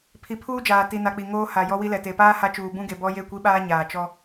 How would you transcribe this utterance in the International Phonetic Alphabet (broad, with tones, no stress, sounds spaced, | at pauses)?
pʰ i˨ pʰ uː˦ d͡ʒ aː˨ t i˨ n a˨ k͡p i˨ ŋ oː˦ h a˨ j ɔ˦ w i˦ l ɛ˨ t e˨ p aː˦ h a˦ t͡ʃ uː˨ b ũ˦ ɡ e˨ b ɔ˦ j e˦˨ kʷ i˦ ɓ aː˦ ɲ aː˨ t͡ʃ ɔ˦